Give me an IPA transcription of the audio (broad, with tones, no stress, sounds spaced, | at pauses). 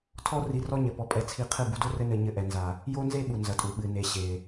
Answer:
tʰ ɔ˦ r i˧ r ɔ˦ ɲ ɘ˨ p ɔ˧ pʼ ɛ˧ t͡sʰ i˧ qʰ ɨ˦˨ b u˧ d o˦ r ɘ˦ n ɘ˧ ɲ ɘ˧ ʔ ɛ˨ n z a˨ | j o˦ n z e˦ ɓ u˨ n z ɐ˨ tʼ u˨ ɓ ɨ˨ n e˨ ɕ e˨